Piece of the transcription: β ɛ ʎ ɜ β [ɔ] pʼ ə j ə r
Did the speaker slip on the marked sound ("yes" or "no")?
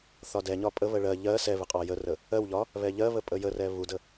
yes